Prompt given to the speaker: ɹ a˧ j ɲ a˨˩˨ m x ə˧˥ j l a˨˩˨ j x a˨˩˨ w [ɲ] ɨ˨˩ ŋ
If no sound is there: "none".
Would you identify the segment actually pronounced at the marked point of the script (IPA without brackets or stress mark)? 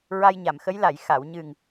ɲ